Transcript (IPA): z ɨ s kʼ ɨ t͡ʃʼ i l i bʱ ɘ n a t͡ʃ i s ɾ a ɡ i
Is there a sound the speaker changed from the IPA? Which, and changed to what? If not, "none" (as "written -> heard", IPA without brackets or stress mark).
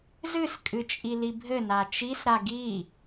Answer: none